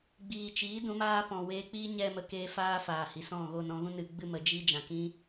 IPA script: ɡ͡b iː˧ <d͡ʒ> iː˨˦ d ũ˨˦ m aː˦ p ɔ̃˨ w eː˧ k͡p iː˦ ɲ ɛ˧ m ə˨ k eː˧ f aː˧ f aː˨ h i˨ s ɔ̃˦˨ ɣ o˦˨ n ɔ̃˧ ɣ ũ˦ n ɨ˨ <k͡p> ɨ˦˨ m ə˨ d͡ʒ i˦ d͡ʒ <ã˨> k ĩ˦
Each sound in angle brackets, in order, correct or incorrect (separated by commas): incorrect, incorrect, correct